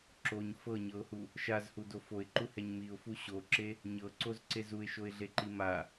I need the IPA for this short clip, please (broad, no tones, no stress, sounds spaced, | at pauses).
ǁ o ɲ f ɤ ɲ ɤ ʊ̯ h u | ʃ a z h u d o f o ɪ̯ ǃ u h ɛ ɲ m i ʊ̯ f u ɕ o ǁ e | ɲ ɤ ǀ o z ǀ e z u ɪ̯ ʃ o ɪ̯ ɮ e ǃ i m a